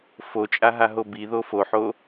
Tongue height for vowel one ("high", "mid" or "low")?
mid